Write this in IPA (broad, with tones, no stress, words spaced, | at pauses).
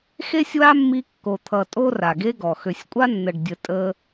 xe˦sʲwa˦mːi˧ kːo˨t̪ʰʌ˨ tʼo˦ra˨ɡe˦ɡɔ˨ xø˨sʲkʷʼa˦ nːə˨ɖdʲə˨tʼə˧